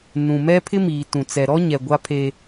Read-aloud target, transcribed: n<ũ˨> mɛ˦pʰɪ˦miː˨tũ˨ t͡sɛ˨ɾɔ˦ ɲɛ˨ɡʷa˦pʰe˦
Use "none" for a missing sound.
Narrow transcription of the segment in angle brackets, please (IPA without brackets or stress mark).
ũ˨